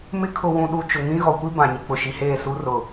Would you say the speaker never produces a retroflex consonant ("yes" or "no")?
yes